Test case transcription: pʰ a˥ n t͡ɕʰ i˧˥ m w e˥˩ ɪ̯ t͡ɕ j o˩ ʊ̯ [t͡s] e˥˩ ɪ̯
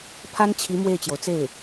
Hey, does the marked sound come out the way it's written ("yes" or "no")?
yes